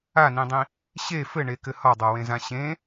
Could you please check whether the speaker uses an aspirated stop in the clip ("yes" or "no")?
no